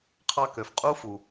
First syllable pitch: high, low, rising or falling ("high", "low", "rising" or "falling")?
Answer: high